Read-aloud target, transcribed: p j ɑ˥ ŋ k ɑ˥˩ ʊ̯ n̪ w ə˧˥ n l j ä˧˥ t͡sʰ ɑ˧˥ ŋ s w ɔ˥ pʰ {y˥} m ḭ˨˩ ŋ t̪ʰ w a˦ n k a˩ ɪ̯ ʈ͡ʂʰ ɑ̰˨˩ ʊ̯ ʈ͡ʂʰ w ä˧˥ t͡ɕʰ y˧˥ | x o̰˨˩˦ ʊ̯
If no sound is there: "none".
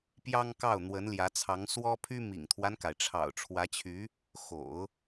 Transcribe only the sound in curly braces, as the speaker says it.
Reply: y˥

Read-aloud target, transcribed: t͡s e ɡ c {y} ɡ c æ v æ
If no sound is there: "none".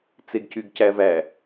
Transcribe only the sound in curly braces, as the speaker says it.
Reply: y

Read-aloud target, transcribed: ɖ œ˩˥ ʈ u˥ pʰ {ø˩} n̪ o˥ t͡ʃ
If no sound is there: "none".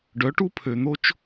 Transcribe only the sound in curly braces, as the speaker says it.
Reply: ø˩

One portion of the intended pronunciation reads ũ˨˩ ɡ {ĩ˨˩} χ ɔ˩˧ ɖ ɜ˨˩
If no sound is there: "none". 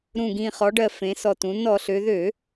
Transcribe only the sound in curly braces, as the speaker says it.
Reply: ĩ˨˩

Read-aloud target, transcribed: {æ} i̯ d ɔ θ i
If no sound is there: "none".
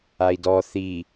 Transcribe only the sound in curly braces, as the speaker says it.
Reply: a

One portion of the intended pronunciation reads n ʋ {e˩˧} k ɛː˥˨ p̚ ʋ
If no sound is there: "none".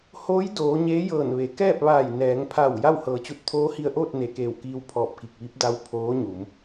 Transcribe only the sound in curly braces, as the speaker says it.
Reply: e˩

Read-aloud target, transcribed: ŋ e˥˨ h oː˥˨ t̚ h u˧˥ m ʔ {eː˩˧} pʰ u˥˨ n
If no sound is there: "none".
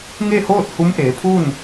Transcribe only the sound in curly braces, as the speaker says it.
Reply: eː˩˧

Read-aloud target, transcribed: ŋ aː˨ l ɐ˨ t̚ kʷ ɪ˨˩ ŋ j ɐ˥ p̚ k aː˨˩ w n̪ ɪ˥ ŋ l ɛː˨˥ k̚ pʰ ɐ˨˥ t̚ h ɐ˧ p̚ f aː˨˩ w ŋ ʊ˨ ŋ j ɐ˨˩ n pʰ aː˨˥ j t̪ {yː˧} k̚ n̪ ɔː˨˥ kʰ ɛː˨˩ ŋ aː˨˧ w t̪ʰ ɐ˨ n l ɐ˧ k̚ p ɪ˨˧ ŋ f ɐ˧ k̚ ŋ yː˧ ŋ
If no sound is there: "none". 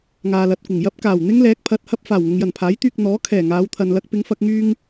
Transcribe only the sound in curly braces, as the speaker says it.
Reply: yː˧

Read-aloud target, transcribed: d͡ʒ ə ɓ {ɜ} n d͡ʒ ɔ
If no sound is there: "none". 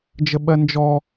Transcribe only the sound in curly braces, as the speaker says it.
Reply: ɜ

